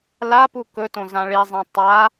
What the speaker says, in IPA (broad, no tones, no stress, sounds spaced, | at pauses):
l a p u k ɵ t õ z ã ɭ i zˤ ẽ tˤ a